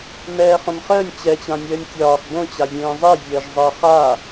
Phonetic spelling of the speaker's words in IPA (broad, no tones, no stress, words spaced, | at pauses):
mɛːχõmχəːnʲ t͡ɕɛt͡ɕãnʲəːnʲ tʲɒːx bõt͡ɕa zʲẽːzˤɛ zʲəːʒzˤəːχa